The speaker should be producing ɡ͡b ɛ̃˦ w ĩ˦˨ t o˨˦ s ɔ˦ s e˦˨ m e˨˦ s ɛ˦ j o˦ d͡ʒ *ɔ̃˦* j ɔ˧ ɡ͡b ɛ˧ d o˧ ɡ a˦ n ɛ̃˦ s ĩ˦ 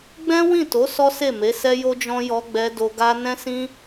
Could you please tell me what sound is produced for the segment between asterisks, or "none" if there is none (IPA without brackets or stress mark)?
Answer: ɔ̃˦